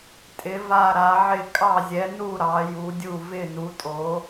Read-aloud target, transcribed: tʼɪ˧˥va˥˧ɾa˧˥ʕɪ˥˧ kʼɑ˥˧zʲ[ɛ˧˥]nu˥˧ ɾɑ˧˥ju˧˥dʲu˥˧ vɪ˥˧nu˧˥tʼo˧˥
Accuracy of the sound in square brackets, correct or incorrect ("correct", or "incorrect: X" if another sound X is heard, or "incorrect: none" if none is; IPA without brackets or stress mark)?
correct